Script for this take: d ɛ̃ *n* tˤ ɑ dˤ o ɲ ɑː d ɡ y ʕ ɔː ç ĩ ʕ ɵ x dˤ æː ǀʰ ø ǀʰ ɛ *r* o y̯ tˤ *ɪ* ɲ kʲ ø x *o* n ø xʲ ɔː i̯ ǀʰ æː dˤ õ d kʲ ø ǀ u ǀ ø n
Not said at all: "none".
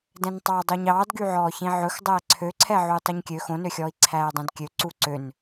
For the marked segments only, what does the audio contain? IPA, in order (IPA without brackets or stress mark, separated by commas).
n, ʕ, y, õ